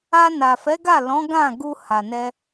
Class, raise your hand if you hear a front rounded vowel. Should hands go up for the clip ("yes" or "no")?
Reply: no